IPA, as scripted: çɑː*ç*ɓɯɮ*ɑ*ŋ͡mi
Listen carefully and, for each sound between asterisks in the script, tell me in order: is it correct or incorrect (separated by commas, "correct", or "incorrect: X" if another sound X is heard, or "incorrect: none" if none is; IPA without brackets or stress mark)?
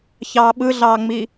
incorrect: none, incorrect: ɑː